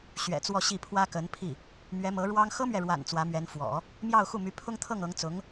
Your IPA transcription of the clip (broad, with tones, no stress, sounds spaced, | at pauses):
ɕ ɥ ɛ̰˨˩ t͡s w ɔ˥˧ ɕ i˥˩ pʰ w ä˥ k ə˧˥ n pʰ i˥˩ | m ɥ ɛ˧˥ m ɤ˧˥ ɻ w ɑ˥ ŋ x ɤ˥ m ɥ ɛ˨ ɻ w a̰˨˩ n t͡s w ä˧˥ m ɥ ɛ˧˥ n f w ɔ̰˨˩˦ | m j ɑ˥˧ ʊ̯ x u˥˩ m y˧˥ pʰ ʊ˥ ŋ t̪ʰ ɤ˥˩ ŋ ɤ˧˥ ŋ t͡s ʊ˧˥ ŋ